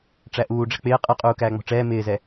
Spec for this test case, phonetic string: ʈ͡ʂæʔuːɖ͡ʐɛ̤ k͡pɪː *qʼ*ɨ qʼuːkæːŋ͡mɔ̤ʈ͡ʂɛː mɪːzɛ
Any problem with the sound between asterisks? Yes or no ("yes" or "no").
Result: no